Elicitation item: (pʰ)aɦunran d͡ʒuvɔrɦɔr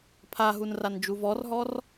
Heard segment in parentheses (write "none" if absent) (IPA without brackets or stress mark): pʰ